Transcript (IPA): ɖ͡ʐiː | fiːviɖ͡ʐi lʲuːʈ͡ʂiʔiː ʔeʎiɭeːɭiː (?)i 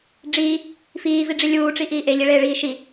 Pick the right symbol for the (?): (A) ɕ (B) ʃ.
B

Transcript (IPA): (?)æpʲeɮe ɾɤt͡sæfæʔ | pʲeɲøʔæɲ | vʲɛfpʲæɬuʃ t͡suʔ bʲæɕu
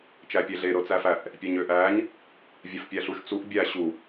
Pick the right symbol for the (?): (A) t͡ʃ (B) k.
A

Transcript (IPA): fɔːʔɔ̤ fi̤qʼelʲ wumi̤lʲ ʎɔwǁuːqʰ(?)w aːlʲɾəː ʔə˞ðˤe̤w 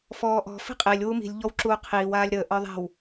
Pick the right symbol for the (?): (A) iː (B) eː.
A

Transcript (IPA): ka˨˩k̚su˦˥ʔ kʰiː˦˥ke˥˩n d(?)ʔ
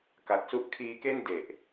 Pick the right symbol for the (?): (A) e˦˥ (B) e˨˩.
B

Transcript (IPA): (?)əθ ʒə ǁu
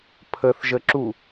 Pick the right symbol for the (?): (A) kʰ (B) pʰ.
B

